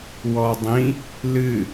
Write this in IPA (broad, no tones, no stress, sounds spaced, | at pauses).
w ɔ dˤ ĩ | l ɨ